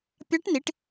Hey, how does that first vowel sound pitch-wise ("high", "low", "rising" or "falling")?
rising